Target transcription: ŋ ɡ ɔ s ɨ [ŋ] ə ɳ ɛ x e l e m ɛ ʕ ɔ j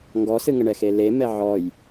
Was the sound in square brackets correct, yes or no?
yes